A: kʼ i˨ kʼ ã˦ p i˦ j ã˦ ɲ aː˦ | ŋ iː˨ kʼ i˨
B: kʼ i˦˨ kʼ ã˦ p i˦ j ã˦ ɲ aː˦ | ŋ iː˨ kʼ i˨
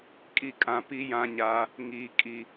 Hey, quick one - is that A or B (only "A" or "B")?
B